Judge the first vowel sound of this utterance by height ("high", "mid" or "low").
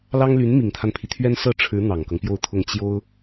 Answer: low